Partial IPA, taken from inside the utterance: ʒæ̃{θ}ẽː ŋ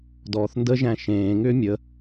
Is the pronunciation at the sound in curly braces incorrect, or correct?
incorrect